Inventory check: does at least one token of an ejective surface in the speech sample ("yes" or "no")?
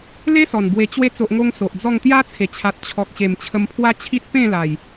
no